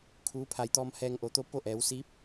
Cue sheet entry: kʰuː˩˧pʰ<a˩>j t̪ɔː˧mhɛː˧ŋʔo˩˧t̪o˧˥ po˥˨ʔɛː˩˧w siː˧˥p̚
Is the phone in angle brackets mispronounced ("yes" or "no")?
no